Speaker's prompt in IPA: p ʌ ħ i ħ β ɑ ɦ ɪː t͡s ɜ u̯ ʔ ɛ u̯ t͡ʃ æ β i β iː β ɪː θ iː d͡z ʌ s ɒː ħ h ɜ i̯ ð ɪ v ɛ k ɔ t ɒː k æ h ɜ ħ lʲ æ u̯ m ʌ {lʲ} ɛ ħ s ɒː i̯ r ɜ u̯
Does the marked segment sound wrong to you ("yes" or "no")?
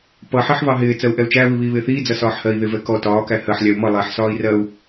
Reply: yes